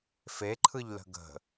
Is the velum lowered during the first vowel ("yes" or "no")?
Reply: no